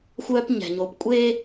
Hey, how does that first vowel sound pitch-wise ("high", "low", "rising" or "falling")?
high